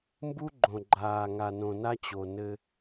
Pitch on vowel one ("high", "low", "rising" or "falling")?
high